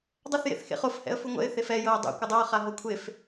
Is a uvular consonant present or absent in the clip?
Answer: present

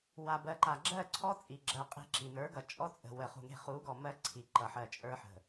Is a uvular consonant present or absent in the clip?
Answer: present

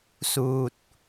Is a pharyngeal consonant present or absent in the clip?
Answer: absent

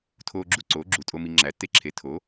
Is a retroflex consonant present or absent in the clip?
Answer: absent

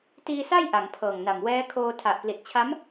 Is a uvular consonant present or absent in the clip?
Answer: absent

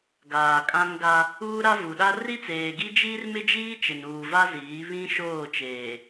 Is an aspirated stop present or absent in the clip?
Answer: absent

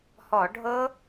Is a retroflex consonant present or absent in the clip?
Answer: present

